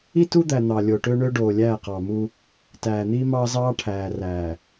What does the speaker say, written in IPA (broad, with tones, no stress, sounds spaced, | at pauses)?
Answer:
i˦ t u˦ d̪ æ˨ n̪ ɑ˨ lʲ o˨ ʈ ø˦ ɳ ø˦ ɖ oː˨ lʲ æː˦˨ q ɑ˨ m u˦ | t æː˨ n̪ iː˦ m ɑː˦ z ɑː˦ ʈʰ æː˨ r æː˨